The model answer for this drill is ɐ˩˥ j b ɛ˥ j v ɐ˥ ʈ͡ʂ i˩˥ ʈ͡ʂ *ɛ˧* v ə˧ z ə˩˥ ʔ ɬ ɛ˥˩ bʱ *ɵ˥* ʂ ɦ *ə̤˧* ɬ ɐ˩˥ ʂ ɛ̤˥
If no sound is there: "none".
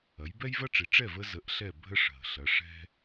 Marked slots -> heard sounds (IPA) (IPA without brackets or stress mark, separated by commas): ɛ˥˩, ə˥, ə̤˩